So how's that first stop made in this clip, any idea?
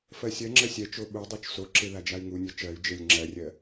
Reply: click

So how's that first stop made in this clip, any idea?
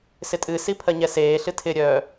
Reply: ejective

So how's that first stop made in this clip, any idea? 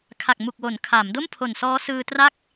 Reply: aspirated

